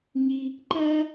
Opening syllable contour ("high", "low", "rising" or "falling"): high